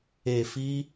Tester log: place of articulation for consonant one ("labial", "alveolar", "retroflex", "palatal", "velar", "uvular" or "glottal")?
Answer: labial